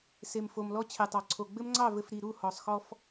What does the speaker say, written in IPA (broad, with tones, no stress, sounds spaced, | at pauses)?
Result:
s e˨ m f o˨ m l ɔ˦ t͡ɕʰ e˨ tˤ ɑ˨ ǀʰ o˨ ɡ͡b ɘ˦ m ŋ͡ǀ ɑ˦˨ v ɘ˨ f ɾ i˨ ɾ u˦˨ h ɔ˨ sˤ x ɔ˦ f